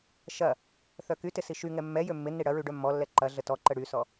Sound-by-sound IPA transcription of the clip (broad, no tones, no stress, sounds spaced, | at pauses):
ʃ ɐ | θ œ k y t ɪ s i ʃ y ŋ ɛ mː ɛ j ø mː ɪ nː i ɽ ɐ ɹ y ɖ œ mː ɔ lː ɛ ǃ ɐ ɮ ə t ɔ ǃ ə ɽ y s ɔ